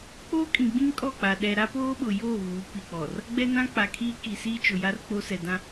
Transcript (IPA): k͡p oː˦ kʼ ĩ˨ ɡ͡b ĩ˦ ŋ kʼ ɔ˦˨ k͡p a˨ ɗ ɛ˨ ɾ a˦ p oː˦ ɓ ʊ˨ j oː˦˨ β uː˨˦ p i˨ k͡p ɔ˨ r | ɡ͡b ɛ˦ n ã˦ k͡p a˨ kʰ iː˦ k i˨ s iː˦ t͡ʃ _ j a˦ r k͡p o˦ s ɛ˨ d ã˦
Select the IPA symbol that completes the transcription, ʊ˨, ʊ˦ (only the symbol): ʊ˨